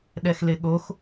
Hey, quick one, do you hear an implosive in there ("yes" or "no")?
yes